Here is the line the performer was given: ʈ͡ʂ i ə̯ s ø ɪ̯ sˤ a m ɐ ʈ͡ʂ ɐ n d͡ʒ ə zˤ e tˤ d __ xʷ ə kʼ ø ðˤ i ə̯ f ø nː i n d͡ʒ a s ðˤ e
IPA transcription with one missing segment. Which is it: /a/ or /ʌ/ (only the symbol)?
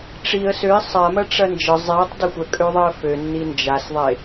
ʌ